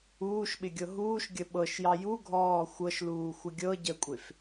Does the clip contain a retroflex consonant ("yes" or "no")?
no